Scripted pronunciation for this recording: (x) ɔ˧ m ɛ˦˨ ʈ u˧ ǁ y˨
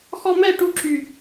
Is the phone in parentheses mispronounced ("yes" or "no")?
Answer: no